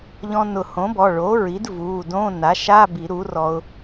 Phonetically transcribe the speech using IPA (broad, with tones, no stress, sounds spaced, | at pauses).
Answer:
ʎ ɔ̃˧ n ʊ˨˩˦ h õ˩˥ b ɔ˩˧˩ ɭ o˩˥ ɹ i˩˥ d v u˩˧˩ d õ˧˥˧ n a˩˥ ʃ a˧˥˧ b i˨˩˦ ɾ u˩˥ r ɔ˧ ʊ̯